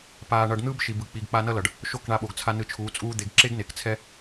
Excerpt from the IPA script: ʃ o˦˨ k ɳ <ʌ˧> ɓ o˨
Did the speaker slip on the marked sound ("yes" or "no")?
yes